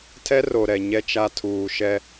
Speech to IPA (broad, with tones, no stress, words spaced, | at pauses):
tʰɛ˦ro˨ɾɛ˨ ɲɛ˦t͡ʃa˦ tʰuː˨ʃɛ˦